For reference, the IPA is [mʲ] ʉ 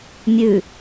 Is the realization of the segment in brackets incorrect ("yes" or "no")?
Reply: no